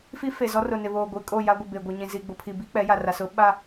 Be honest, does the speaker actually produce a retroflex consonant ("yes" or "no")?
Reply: no